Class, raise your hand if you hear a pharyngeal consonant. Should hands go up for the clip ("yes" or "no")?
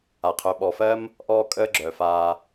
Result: no